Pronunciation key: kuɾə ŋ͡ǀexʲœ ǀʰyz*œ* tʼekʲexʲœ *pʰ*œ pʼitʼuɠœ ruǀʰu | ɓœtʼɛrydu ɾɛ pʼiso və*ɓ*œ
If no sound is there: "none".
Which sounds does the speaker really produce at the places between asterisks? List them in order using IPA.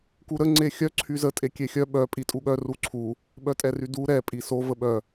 ə, ɓ, ɓ

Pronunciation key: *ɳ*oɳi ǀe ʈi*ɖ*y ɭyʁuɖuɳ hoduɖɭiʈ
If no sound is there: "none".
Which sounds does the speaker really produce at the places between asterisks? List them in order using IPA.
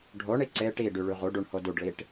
ɖʱ, ɖ

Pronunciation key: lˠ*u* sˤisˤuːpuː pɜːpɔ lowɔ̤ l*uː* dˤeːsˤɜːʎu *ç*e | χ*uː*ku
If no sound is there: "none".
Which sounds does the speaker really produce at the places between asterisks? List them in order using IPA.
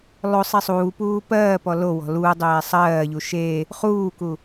o, uː, ʃ, uː

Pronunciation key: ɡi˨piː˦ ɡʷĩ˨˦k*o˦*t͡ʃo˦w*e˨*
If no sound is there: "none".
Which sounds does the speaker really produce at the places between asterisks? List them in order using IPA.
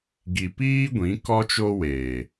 ɔ˦, eː˨

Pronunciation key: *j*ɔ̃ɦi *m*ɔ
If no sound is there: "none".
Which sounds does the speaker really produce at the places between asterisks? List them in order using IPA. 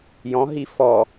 j, f

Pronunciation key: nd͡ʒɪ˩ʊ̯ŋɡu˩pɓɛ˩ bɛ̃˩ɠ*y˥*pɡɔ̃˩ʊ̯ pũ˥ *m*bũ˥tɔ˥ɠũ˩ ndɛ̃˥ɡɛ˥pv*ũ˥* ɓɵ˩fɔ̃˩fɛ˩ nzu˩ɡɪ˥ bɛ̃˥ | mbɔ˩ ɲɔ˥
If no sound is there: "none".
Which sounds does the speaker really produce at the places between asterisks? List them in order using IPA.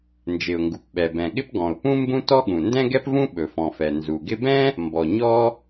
ɪ˥, m, ũ˥

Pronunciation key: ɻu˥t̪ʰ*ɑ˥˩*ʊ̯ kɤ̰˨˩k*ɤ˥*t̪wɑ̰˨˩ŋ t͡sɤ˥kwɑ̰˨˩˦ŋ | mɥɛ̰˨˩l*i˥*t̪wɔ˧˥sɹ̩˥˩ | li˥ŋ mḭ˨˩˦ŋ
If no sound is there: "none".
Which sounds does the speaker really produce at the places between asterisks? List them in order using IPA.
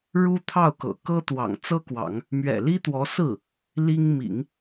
ɑ˥˩, ɤ˥, i˥

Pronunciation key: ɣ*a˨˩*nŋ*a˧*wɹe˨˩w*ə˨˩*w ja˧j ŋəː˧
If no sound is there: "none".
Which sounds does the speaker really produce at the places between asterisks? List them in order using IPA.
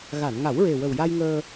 a˨˩˨, a˨˩˦, ə˨˩

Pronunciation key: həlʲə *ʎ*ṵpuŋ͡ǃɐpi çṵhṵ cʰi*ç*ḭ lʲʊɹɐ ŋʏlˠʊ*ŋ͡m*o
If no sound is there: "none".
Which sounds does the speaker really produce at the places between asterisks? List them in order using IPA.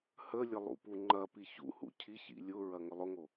lˠ, ç, ŋ

